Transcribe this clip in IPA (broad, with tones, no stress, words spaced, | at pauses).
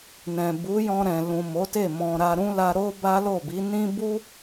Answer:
nɛ̃˨bu˨˦jɔ̃˧ ɾɛ̃˨lũ˨ mo˨˦te˦˨ mɔ̃˨ ɾa˧ ɾũ˦la˧ɾo˦ ba˦lo˦˨bi˨˦ nĩ˦ bu˦